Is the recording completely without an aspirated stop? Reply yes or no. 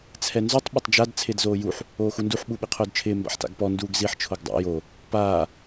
no